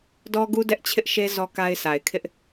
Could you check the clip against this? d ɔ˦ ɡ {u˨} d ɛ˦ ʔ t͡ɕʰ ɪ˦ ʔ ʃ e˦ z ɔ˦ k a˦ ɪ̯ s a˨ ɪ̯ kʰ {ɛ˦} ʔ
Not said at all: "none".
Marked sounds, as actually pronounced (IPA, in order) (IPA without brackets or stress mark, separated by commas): u˦, ɪ˦